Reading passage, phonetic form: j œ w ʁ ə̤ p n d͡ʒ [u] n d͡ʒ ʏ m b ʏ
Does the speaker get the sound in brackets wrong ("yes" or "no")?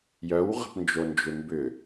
yes